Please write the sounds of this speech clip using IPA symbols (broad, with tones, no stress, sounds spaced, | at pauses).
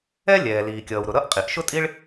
ɛ˥ lʲ ɛː˩ l iː˩ kʲ ʌː˩ w ɾ ʊ˩ ɾ ʌ˥ ʔ qʼ i˩ ʔ ʃ ʊ˥ tʼ i˥ ɭ